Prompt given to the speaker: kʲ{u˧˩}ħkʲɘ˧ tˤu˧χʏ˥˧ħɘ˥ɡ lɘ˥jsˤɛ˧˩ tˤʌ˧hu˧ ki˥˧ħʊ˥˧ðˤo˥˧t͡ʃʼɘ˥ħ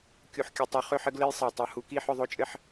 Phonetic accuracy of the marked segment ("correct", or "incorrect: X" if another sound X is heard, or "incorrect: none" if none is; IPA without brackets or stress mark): incorrect: u˧